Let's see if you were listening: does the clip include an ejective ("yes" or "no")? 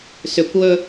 no